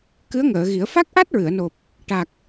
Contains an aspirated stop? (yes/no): no